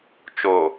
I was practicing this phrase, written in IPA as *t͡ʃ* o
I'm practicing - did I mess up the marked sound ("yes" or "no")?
no